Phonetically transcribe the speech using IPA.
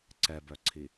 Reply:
ǀ ɛ b œ ǀʰ i

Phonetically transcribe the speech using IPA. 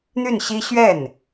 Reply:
n̪ y˥˩ n ɕ i˥ ɕ ɥ ɛ˥˩ n

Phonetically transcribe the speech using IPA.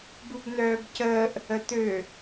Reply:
b u b n œː b c əː ʔ | ə t̪ ø

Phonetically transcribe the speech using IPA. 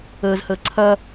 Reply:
əː z h əː ǀʰ ɐ

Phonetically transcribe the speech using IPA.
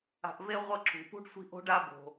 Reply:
a̤˨ ʔ v e˦ ʁʷ ʌ˦ ǁ ṳ˩ p ṳ˥ ɖ sʷ i̤˦ ʔ o̤˦ ɖ a˦ b o̤˩

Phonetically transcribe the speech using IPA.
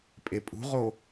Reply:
pʼ e pʼ ṳ ʁ o

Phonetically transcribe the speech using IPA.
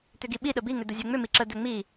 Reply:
t̪ ʏ ɡ i ɓ i ɗ ə b i ŋ ʏ d̪ ə zʲ ɛ ŋ͡m ʏ m i ǁ ə d̪ ɛ ŋ͡m i

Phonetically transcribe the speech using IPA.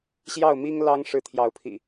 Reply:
ɕ j ɑ˥˨ ʊ̯ m i˦ ŋ l ɑ˦ ŋ ʂ ɻ̩˨˦ t̪ʰ j ɑ˨˦ ʊ̯ pʰ ḭ˨˩

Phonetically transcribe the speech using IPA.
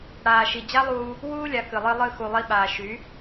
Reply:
ɽ aː˨ ʃ i˨ d͡ʑ a˦ lˠ uː˧ | w uː˦ lʲ a˨ k ɨ˨ lˠ ɨ˧ lˠ ɨ˦˨ x u˨ lˠ i˧ ɓ aː˨ ʃ y˨˦

